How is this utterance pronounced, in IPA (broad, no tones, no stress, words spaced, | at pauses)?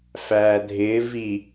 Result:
fæːdʱɪː vi